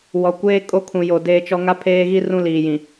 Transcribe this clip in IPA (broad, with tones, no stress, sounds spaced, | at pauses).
w ɔ˨ kʷ eː˦ kʼ o˦ kʰ ũ˨ j o˨ d eː˦ t͡ʃ ɔ˦ ŋ a˦ pʰ eː˦ ɣ i˦ r ũ˦ l iː˨ j ĩ˨